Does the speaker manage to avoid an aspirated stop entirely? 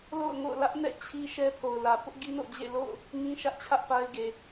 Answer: no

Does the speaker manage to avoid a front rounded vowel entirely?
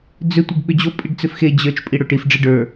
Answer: no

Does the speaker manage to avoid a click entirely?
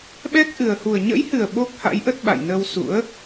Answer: yes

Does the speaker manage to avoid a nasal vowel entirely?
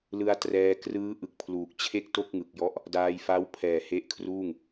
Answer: yes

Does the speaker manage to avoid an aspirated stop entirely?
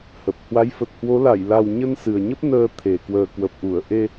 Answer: no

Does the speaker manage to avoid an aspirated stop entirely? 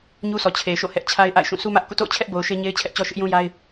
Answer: no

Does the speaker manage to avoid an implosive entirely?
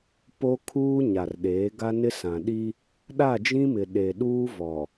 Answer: no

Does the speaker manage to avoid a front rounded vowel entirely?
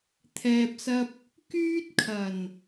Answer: no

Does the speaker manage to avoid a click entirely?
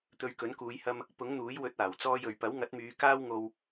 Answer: yes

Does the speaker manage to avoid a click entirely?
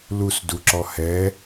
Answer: no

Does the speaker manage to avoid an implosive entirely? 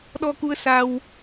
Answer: no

